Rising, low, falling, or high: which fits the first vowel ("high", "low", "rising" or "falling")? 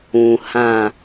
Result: low